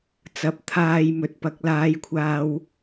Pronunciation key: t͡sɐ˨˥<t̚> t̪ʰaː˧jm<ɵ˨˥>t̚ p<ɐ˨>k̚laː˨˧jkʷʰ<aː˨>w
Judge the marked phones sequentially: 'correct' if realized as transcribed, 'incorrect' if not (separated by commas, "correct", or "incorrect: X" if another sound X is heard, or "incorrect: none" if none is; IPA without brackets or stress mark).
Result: incorrect: p̚, incorrect: ɵ˨, incorrect: ɐ˨˥, incorrect: aː˧